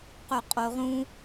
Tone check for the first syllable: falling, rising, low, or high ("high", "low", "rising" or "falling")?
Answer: low